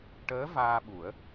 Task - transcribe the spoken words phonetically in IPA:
ʈ əː˧˥ v aː˧ ɓ u˨˩˦ ə̯

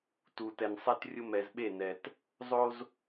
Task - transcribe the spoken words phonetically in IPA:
t u˨ t ɛ˨ n sˤ ɛ˦ t rʲ ʊ˦ m ɛ˨ z ɓ e˦˨ n ɛ˨ t | zˤ o˦ z

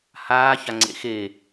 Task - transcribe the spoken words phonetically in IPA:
h aː ç a ŋ͡ǀ ḛ x e

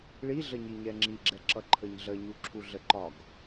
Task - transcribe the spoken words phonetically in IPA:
ɭ i ɮ ə ɲ i ɲ ɛ ŋ͡ǁ i ɡ͡ǁ ɛ ǁ ʌ ǃʰ ə ɲ ɮ ə ɲ u ǁʰ u ɮ ə ǃ ɒ ɡ

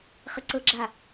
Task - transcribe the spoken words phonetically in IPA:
χ ə ǀ ɤ ɡ͡ǁ a

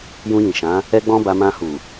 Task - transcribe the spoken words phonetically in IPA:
j ũ˧ j ĩ˨ ʃ ã˨˦ | ɛ˦ ɡ͡b ɔ̃˦ b a˧ m ã˧ h u˨

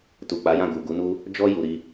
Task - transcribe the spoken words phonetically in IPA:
t u˨ k͡p a˨˦ j ã˦˨ ɡ u˨ ɡ u˨˦ n u˦ | d͡ʒ ɔ˧ j u˨ ɾ i˧

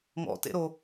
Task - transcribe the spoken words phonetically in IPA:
ŋ ɔ̰ t ḛ ɾ o

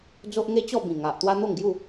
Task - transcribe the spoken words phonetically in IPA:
d͡z o˦ ʔ ŋ e˦ t͡ɕ ɔ˥˧ b ĩ˨˩ ŋ a˨ ʔ t̪ w a˦ n̪ o˥˧ ŋ ɡ j u˥˧

